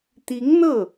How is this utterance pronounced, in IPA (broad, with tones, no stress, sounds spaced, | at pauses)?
t̪ i˧˥ ŋ n̪ ɤ˥˩